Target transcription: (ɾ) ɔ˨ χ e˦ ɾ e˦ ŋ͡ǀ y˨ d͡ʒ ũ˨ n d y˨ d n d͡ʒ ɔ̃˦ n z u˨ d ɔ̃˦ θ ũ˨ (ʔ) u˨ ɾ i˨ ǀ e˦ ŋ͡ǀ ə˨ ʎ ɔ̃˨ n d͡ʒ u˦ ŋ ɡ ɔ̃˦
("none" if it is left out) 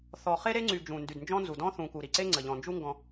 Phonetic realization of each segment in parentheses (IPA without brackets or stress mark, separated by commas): θ, k